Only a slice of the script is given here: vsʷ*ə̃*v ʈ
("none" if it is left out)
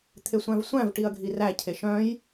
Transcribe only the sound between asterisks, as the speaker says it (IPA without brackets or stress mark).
æ̃